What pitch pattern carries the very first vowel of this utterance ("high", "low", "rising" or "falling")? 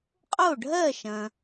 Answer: falling